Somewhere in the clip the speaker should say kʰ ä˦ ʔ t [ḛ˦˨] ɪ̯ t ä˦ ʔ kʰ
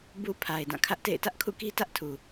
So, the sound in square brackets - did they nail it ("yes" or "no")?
yes